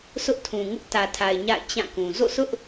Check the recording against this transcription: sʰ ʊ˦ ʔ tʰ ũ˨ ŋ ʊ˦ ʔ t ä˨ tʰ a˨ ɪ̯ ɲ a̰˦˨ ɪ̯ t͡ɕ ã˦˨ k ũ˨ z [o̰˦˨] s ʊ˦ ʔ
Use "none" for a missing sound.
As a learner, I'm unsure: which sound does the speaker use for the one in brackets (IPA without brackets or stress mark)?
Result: o̰˦˨